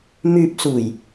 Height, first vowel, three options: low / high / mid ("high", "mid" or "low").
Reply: high